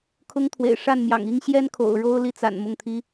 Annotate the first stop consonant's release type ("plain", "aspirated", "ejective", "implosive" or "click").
aspirated